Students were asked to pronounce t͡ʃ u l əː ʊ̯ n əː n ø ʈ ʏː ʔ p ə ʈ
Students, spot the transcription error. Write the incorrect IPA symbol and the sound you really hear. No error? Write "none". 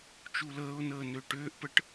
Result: none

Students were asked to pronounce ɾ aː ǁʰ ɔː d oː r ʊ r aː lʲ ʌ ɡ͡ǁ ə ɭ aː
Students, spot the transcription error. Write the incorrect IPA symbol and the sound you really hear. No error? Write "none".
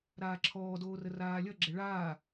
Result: ʊ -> ə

